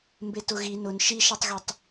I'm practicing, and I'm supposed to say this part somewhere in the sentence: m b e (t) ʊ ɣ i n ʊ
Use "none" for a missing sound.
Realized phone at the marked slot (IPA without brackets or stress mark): t